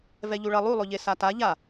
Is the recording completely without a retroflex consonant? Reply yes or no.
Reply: no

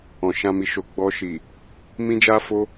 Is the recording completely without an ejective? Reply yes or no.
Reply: yes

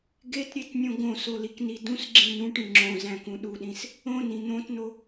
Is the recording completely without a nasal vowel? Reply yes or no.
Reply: no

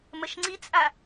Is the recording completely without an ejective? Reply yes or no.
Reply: no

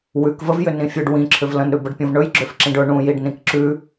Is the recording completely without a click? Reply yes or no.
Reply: no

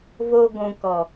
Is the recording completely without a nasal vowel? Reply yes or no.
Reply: no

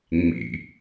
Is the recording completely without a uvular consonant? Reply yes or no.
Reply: yes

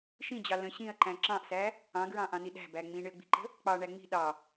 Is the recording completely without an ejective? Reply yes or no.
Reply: yes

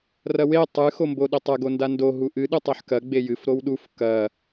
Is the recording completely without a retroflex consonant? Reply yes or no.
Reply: yes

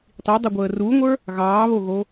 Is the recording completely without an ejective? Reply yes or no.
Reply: yes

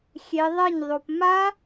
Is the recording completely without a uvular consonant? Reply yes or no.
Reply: yes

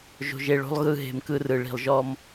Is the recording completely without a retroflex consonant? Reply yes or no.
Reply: no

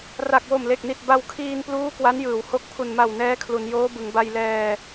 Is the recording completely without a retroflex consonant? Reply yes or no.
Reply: yes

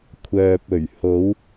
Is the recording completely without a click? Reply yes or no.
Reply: yes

